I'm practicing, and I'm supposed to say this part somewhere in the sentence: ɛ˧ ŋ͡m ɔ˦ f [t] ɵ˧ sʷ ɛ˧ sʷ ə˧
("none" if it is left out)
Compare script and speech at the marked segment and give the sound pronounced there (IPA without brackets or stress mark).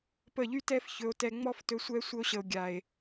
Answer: t